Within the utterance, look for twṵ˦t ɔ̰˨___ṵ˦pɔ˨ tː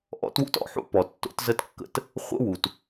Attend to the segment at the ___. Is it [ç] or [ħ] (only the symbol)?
ħ